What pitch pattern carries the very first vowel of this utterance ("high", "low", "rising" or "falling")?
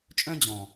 high